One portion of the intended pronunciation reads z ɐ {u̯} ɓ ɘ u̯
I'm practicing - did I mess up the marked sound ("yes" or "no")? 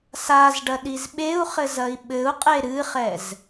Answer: yes